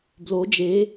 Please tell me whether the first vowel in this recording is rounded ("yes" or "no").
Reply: yes